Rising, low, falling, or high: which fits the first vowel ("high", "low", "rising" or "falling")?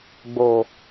low